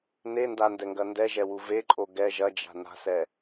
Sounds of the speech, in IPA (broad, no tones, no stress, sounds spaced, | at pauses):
n e n d a n d ɛ ŋ ɡ ɐ n d ɛ ʒ ɛ w u v e ǃʼ o ɡ ɛ ʒ ɐ d͡ʒ a̤ n a̤ s ɛ